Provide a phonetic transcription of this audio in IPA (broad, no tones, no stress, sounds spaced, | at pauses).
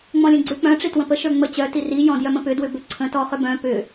ŋ͡m ɔ̃ lʲ ə̃ ɡ͡ǀ ʏ k͡p œ̃ ʈ͡ʂ i t w ə̃ p ə ʃ ə˞ ŋ͡m ə t͡ɕ œ t i r i j ɔ̃ d j œ m ə̃ p ʏ d w ʏ b ʏ ǀʰ ə̃ t ɔ χ ʏ b œ̃ p ʏ